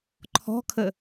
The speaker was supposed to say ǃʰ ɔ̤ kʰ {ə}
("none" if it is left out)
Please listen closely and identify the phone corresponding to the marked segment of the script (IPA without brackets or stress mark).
ə